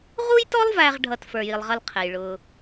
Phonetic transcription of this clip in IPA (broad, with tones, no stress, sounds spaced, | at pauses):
ʁ u˥ j t ɔ˥ lˠ v æ˨ ʁ ɖʱ ʌ˨ t f ə˞˩ j i˩ lˠ ʁ ʌ˨ l qʰ ɛ˩ j ɭ ʊ˩